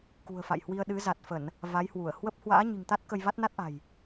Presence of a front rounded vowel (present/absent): absent